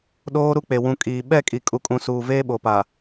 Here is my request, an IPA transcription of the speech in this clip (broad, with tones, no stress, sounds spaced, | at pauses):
ɗ oː˦ ɾ u˦ k͡p e˨ w ũ˨ kʼ iː˨ ɓ ɛ˦˨ kʼ i˨ kʼ u˨ kʼ ũ˨ s uː˨ v eː˦ ɓ o˨ p a˨